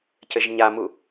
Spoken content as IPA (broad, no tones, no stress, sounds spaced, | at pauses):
c ɘ ʒ ɲ a m u